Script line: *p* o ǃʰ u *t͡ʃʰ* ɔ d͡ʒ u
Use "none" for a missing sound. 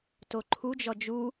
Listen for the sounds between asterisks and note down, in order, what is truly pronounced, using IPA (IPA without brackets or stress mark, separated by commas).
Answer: t, d͡ʒ